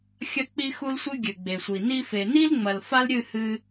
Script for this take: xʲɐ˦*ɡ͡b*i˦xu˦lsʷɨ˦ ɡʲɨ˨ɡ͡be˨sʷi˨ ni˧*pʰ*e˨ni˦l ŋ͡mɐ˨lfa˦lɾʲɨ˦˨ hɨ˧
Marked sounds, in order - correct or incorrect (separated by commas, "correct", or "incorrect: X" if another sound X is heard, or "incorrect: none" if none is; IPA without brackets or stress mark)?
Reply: incorrect: k͡p, incorrect: f